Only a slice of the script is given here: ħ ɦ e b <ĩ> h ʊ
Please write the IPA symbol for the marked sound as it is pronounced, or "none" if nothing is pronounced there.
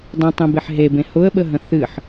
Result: ẽ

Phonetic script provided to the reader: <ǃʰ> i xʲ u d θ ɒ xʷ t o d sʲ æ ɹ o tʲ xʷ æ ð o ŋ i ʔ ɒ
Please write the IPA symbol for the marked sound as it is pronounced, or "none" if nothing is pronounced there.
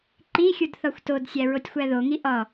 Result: ǃ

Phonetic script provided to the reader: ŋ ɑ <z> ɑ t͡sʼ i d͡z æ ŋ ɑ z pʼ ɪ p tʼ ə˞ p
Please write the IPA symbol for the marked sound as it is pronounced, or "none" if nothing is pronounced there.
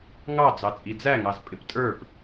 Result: d͡z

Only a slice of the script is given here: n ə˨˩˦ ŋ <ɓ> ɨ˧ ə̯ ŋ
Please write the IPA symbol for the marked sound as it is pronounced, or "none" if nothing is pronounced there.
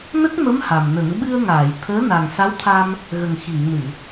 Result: ɓ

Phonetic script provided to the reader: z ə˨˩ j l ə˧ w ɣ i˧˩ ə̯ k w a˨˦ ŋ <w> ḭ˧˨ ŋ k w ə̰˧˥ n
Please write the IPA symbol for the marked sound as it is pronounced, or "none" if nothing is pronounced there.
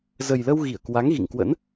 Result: ɣ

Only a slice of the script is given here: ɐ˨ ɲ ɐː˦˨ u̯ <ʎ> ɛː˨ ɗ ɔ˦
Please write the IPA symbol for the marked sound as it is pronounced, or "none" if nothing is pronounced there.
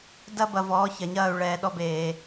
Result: ɭ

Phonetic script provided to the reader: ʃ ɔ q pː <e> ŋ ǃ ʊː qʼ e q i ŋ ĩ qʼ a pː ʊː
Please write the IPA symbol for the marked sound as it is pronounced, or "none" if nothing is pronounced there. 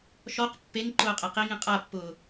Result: e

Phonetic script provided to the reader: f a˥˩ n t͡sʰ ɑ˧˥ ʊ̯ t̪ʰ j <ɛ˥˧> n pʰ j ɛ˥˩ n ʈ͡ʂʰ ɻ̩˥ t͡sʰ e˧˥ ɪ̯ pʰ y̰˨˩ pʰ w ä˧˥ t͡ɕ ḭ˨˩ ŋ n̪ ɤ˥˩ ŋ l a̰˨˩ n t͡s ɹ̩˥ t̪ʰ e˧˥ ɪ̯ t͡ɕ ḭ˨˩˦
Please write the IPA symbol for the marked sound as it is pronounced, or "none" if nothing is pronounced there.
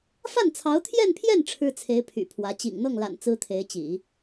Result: ɛ˥˧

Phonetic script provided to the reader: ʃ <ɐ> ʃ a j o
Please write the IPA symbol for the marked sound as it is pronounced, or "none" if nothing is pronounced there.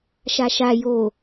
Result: a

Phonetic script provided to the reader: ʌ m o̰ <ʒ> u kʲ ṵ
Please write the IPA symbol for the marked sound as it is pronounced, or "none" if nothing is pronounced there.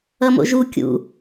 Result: ʒ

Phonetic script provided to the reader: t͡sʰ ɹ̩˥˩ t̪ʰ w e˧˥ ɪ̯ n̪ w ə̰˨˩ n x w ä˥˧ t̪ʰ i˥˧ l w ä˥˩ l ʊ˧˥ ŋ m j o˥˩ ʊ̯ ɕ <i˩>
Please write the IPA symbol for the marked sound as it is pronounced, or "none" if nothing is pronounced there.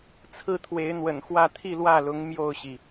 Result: i˩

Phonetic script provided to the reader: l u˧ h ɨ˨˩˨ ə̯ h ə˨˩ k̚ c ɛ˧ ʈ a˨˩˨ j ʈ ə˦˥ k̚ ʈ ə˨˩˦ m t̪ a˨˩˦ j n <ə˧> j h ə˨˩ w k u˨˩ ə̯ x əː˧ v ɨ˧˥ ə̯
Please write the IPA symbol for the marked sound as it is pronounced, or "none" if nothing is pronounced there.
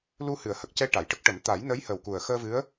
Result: ə˧˥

